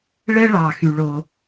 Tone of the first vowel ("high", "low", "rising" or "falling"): high